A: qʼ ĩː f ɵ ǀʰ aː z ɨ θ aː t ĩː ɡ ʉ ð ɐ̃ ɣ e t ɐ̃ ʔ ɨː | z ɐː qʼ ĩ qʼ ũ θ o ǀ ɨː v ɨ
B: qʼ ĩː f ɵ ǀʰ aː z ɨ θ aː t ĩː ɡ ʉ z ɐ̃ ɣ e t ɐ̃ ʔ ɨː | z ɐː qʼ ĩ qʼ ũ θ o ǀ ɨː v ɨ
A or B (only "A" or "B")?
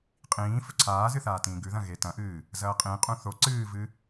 A